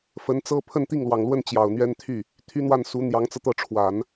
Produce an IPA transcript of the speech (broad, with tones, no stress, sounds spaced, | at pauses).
f ə˧˥ n t͡s ɤ˥ pʰ ə˥˧ n t̪ i˥˩ ŋ l w ɑ˨˩ ŋ l w ə˥˩ n t͡ɕ j ɑ˨˩ ʊ̯ n̪ ɥ ɛ˥ n t̪ʰ y˥˩ | t̪ʰ y˥ n̪ w a˥˩ n s u˧˥ n̪ j ɑ˧˥ ŋ t͡s ɤ˧ t̪ ɤ˥˩ ʈ͡ʂʰ w a˨˩˦ n